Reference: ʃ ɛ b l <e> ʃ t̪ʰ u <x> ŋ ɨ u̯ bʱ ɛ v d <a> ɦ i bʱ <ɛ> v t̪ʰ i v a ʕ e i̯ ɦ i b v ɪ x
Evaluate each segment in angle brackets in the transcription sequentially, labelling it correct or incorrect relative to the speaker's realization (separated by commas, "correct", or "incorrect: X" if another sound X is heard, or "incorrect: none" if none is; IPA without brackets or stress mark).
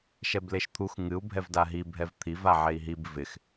correct, correct, correct, correct